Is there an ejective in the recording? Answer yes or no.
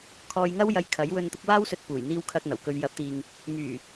no